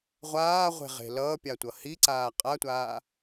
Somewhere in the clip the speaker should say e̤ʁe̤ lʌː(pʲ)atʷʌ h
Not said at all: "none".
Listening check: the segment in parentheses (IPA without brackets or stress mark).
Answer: pʲ